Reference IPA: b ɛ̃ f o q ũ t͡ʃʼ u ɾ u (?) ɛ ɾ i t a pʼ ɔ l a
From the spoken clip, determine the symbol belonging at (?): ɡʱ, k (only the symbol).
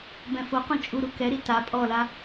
k